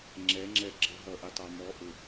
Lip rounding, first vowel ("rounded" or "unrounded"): unrounded